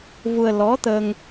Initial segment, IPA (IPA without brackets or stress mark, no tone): v